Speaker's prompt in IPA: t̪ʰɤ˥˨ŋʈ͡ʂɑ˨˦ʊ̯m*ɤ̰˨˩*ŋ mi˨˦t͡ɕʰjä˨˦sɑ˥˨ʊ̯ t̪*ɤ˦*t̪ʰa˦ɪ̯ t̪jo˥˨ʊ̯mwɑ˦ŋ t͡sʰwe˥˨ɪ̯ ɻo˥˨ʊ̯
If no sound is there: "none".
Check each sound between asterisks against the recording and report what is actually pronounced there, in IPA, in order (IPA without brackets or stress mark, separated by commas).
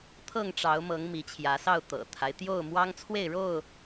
ɤ˨˦, ɤ̰˨˩